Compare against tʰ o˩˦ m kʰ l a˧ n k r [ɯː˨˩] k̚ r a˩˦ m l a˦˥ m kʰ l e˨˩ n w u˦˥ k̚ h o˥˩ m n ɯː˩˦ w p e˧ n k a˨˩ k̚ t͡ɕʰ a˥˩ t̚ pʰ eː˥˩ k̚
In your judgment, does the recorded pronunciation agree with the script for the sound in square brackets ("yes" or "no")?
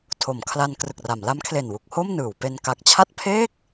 no